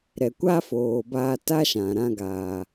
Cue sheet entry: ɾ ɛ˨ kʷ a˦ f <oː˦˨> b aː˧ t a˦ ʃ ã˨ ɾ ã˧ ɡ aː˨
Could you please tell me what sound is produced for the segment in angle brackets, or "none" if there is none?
oː˨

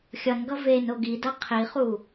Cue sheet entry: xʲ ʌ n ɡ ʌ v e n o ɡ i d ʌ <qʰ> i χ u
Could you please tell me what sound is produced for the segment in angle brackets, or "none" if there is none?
qʰ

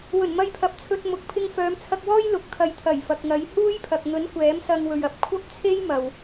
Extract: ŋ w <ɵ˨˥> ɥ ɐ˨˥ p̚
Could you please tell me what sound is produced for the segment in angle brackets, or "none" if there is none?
ɵ˨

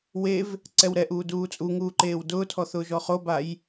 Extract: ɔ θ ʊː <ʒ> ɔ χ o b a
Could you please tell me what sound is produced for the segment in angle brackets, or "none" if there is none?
ʒ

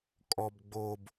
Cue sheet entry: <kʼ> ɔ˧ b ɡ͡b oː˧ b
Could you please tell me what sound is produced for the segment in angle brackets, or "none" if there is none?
kʼ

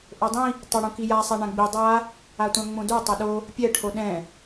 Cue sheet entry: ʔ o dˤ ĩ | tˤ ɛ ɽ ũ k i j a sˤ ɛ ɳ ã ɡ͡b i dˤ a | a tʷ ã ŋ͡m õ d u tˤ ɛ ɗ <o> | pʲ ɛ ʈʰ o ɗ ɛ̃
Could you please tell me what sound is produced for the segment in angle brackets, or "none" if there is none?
o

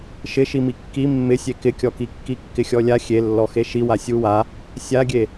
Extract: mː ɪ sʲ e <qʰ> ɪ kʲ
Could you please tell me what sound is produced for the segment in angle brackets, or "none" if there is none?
k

